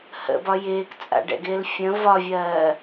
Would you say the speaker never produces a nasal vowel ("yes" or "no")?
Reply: no